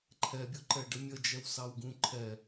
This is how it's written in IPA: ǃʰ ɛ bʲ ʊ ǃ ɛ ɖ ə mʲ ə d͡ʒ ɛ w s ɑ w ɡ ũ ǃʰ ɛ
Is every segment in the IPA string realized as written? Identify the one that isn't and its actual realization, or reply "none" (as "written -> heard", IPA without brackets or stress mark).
none